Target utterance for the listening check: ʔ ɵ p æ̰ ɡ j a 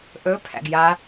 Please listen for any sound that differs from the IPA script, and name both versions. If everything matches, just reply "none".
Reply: p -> pʰ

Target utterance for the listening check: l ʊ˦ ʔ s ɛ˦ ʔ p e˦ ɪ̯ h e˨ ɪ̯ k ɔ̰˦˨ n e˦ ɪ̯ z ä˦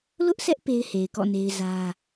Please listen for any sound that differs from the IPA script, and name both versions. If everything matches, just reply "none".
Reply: none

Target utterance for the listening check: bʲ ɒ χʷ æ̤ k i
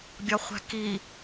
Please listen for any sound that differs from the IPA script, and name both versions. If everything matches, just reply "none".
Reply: none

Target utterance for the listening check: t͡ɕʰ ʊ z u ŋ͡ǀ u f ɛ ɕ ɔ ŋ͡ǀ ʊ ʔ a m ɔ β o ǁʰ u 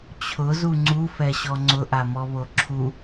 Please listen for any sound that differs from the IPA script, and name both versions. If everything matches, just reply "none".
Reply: none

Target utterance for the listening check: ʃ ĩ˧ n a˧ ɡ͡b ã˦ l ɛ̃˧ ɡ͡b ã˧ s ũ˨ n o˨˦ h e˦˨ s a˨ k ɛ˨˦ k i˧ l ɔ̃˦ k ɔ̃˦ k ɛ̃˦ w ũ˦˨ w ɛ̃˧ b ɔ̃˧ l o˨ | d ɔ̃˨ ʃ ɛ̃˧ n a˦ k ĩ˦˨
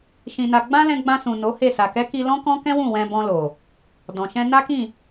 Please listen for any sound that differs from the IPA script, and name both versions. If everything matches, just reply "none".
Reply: none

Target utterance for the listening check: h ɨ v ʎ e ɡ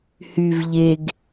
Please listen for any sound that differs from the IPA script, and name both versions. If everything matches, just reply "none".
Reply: ɨ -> y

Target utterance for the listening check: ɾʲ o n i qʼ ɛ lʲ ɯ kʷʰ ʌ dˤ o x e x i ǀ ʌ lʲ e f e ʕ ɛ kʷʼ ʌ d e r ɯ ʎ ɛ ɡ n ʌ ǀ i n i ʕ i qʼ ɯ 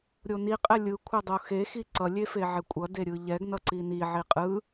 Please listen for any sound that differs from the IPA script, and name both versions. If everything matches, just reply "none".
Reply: r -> ɾʲ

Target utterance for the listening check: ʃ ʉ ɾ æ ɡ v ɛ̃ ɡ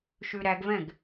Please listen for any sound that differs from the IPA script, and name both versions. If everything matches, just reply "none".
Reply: none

